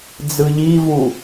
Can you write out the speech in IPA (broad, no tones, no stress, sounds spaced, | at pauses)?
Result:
d͡z ɯ ʎ i v u